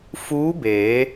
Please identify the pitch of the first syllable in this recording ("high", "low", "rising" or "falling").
rising